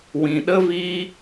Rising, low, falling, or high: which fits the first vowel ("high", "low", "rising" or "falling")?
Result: low